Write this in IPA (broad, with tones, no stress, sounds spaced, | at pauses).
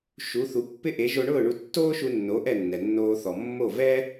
ʃ u˩˥ θ u˩˥ pː ɪ˥ ʔ e˩˥ ʒ o˧ ɳ ʊː˥˩ ɳ u˧ tː oː˥ ʃ u˧ nː o˩˥ ʔ ɛ˥˩ nː ɛ˩ nː oː˧ θ ɔ˩ mː o˥˩ v ɛ˥